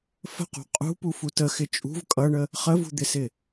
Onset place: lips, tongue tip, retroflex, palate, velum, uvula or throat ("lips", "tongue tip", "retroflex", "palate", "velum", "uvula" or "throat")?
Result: lips